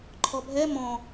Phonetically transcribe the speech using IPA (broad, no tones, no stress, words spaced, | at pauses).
ǃʰɔbʱɛ mɔ̃